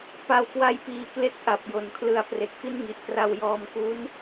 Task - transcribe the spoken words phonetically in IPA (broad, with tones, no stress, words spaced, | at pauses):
pa˧wkwa˦˥jpiː˧kle˦˥k̚ ʔa˨˩p̚jo˨˩nkʰlɯ˧a̯ pre˨˩k̚fi˥˩nŋi˨˩ʔkra˧w jɔː˧mku˦˥n